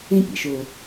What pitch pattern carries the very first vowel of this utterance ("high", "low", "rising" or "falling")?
high